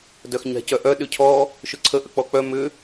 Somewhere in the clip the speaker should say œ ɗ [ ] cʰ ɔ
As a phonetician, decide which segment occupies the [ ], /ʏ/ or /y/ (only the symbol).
ʏ